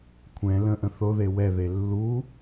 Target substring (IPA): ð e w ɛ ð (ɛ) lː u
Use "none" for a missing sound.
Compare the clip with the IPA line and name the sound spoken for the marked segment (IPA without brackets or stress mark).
e